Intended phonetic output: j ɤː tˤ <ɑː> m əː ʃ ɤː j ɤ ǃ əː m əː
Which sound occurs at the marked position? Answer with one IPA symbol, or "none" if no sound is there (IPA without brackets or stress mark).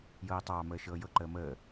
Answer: ɑː